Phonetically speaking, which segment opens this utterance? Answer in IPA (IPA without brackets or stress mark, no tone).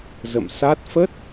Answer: z